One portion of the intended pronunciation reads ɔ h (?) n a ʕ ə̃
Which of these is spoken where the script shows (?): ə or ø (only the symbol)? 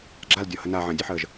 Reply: ə